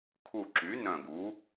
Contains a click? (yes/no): yes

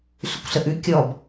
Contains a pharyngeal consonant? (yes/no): no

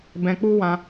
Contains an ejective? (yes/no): no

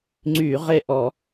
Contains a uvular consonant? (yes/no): yes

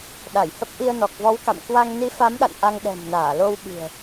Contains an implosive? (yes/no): yes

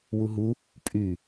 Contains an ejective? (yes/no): yes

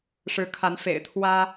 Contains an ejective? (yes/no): no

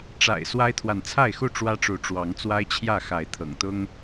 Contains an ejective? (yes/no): no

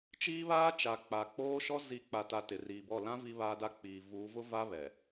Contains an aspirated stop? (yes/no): no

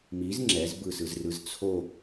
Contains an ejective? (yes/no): no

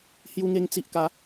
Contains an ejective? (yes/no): no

